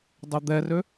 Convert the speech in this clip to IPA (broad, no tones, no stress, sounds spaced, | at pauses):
dˤ ø d̪ ɛ r ø